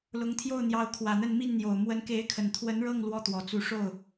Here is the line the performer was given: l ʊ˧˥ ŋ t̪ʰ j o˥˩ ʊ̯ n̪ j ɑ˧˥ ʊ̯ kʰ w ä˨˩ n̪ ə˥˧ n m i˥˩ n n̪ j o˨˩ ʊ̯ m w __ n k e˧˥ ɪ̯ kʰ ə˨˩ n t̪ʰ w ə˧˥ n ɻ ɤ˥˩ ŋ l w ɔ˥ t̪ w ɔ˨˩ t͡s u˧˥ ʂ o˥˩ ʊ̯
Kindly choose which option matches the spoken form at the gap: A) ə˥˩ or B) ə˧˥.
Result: B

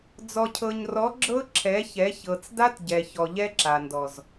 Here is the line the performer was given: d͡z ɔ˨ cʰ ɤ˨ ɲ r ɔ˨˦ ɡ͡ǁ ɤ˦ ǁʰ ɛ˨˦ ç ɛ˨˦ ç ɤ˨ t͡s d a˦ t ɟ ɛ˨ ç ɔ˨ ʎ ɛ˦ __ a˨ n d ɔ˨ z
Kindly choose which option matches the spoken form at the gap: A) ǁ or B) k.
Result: A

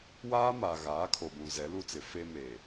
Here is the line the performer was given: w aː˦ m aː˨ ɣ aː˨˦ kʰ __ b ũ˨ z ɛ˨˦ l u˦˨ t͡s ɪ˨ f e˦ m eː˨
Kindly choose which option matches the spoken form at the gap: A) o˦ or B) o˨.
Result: B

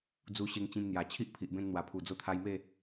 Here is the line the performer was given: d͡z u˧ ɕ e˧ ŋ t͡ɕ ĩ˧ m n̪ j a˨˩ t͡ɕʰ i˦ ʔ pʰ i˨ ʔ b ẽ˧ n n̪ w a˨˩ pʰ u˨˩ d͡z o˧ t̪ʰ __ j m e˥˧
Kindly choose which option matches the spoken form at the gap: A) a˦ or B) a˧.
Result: B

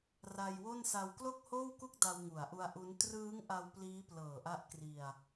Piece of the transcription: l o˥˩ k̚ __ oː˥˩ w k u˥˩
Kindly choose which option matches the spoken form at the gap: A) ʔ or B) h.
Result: B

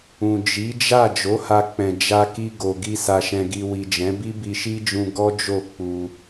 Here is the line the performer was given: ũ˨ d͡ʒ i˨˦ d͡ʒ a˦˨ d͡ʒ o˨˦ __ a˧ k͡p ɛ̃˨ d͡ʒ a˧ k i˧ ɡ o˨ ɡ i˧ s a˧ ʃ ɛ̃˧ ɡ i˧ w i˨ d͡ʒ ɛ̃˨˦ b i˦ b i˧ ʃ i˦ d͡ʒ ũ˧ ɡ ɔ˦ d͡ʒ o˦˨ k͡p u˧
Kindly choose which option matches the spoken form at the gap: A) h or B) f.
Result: A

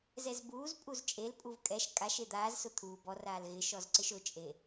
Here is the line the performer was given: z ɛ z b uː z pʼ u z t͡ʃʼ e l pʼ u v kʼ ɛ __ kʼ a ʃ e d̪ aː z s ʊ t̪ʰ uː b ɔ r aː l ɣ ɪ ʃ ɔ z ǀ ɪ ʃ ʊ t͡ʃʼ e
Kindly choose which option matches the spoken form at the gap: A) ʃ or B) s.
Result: A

